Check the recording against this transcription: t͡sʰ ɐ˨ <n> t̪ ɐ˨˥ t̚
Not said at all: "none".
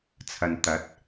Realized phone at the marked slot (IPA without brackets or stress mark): n